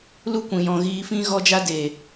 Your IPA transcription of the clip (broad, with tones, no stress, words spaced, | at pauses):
lu˦˨kʷĩ˨jɔ̃˨ ɣiː˧fĩ˦ ɣɔ˦d͡ʒa˦ deː˨